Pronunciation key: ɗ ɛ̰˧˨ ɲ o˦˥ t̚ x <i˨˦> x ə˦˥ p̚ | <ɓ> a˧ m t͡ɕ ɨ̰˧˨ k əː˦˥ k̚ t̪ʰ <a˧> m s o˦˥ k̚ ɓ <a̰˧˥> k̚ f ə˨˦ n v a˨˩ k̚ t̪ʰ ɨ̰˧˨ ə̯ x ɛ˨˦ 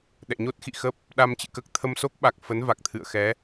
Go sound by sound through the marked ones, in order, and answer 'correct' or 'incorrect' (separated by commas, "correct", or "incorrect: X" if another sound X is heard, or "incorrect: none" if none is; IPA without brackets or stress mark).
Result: incorrect: ḭ˧˨, incorrect: ɗ, incorrect: ə˧, incorrect: a˨˩